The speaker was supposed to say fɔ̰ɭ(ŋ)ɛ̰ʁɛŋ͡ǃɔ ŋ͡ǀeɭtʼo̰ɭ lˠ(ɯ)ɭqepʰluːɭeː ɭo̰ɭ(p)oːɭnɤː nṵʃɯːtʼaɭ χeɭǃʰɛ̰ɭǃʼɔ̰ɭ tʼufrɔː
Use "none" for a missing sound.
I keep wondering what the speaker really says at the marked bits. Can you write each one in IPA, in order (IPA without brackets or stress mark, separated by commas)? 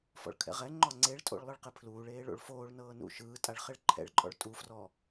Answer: kʰ, ɯ, f